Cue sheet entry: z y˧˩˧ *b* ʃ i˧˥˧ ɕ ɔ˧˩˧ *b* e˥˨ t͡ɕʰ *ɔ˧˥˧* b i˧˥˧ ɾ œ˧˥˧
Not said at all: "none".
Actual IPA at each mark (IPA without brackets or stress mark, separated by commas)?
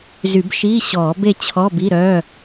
b, b, ɔ˧˥˧